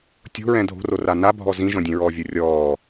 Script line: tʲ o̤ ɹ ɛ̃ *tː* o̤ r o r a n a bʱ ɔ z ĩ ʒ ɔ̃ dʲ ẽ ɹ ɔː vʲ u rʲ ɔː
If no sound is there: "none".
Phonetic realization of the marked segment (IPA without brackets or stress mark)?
dʱ